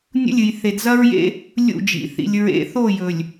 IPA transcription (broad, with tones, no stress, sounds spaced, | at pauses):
nʲ ṵ˦ lʲ ɨ˨ j θ e˨ d z ɐ˦ ɹ j ḛ˦ | lʲ ṵ˦˨ d͡ʒ ḭ˨ θ ḭ˨ lʲ ɹ ḛ˨˦ θ o˦˨ j ɵ˨ lʲ